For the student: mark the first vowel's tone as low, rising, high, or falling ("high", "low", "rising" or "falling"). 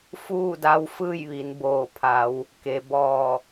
falling